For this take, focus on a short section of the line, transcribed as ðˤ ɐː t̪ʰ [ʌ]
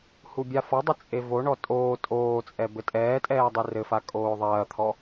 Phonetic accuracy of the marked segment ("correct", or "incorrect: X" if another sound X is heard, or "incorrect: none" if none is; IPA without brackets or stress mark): incorrect: ɔ